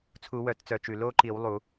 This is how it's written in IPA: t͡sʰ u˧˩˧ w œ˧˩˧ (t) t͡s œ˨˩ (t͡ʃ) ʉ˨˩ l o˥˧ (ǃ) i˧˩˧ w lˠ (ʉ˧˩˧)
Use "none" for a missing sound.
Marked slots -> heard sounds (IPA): t, t͡ʃ, ǃ, u˧˩˧

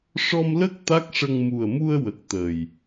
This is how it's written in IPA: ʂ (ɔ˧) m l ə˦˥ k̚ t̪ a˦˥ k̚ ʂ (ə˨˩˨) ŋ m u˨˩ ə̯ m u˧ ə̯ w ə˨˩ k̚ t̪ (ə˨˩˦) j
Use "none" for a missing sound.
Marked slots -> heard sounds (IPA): ɔ˧, ə˧, ə˨˩

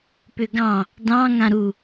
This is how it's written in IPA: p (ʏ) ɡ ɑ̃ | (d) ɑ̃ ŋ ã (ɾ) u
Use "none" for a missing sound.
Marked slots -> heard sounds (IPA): ʏ, d, ɾ

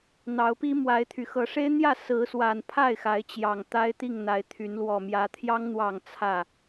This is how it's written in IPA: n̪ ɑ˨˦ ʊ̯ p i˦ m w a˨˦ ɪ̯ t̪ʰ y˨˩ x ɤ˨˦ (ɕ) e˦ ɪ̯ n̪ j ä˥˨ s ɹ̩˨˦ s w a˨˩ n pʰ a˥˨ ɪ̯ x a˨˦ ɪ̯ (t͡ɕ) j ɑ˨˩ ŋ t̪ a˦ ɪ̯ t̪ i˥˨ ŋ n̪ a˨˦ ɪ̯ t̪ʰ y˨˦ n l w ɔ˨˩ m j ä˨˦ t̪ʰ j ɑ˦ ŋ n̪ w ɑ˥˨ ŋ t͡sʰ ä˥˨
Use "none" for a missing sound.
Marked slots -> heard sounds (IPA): ʂ, t͡ɕ

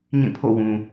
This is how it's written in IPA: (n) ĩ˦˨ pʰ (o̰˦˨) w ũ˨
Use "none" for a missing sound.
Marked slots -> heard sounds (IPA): ɲ, o̰˦˨

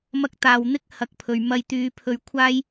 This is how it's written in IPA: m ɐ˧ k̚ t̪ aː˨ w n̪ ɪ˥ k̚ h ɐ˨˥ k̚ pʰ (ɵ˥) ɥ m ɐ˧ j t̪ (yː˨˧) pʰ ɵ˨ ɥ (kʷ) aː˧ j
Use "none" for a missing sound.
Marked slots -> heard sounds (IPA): ɵ˨, yː˨˧, kʷʰ

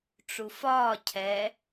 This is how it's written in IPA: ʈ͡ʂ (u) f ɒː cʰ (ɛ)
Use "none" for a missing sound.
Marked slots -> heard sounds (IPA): u, ɛ

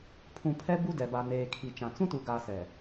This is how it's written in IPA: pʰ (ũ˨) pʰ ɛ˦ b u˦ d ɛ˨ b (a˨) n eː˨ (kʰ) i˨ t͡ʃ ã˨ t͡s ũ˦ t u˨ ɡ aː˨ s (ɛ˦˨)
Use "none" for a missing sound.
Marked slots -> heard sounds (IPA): ũ˨, a˨, kʰ, ɛ˨

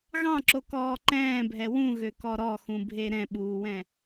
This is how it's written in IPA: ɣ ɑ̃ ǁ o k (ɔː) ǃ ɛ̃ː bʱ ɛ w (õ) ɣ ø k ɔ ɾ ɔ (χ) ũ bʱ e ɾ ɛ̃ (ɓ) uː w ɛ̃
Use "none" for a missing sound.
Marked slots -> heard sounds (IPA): ɔː, ũ, x, ɓ

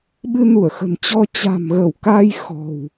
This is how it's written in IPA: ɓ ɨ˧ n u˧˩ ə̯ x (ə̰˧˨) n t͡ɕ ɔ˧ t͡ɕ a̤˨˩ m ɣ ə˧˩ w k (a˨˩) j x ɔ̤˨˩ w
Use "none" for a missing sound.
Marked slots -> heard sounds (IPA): ə̤˨˩, a˧

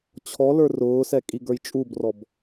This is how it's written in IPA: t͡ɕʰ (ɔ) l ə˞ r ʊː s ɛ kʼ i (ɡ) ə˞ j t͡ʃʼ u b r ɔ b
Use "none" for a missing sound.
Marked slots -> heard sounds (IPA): ɔ, ɡ

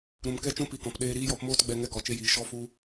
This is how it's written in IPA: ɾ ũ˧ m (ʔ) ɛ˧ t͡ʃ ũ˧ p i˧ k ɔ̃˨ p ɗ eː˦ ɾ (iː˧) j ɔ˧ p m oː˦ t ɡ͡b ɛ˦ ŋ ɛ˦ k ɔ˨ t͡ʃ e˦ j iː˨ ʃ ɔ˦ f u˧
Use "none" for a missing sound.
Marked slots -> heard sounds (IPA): k, iː˦

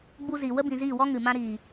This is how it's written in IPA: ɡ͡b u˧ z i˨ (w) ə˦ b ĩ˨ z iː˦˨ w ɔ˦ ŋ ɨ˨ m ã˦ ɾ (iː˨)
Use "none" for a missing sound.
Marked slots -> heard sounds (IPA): w, iː˨

